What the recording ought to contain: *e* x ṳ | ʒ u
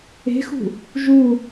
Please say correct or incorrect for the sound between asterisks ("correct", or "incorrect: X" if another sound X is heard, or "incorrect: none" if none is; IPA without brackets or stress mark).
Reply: incorrect: e̤